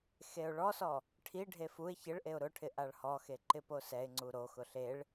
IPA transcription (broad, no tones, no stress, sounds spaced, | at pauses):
x e ʊ̯ ɭ ɔ s ɔ | ʈʰ i ɖʱ e f u ɪ̯ ç ɪ ɭ ʔ e ʊ̯ ɾ ʊ ʈʰ ɪ ʔ a ɭ h ɔ x e ǃ ɪ p o s ɛ ɪ̯ ŋ͡ǀ u ɾ o x ʊ ɬ e ɭ